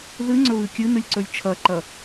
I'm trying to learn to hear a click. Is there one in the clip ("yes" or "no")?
yes